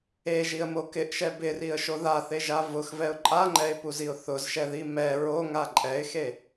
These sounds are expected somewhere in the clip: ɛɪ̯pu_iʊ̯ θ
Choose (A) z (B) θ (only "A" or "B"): A